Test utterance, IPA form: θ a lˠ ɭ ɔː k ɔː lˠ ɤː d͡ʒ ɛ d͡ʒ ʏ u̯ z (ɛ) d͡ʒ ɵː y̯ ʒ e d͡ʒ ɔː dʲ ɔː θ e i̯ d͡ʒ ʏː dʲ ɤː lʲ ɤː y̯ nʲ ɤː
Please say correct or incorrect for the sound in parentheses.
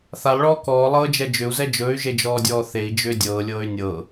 correct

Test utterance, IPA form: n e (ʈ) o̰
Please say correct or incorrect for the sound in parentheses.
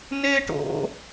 correct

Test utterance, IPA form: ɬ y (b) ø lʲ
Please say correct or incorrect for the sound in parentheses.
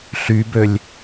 correct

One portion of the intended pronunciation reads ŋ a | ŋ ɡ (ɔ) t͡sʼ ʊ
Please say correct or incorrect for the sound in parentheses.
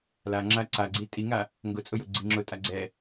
incorrect: ʊ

